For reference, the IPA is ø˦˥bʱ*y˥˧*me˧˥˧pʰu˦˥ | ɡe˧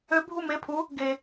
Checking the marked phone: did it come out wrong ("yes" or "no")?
yes